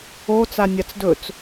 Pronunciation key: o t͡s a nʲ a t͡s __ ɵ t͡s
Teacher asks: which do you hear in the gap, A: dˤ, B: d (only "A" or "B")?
B